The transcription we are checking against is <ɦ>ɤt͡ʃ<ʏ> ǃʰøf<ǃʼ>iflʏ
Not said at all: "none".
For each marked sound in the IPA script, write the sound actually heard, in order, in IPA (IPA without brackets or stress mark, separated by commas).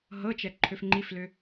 ɦ, ɛ, ŋ͡ǃ